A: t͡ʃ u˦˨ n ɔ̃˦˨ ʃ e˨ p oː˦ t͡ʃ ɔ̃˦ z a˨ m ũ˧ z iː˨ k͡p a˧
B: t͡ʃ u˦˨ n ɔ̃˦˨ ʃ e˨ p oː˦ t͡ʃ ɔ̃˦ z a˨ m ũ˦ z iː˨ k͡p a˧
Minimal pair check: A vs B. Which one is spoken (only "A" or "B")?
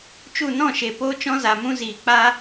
B